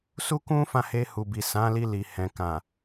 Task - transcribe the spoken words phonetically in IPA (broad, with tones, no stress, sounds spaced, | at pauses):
s u˦ k ũ˦ f ã˦˨ h e˧ h u˨ b i˨ s ã˨˦ l i˧ l i˨ h ɛ̃˨ k ã˨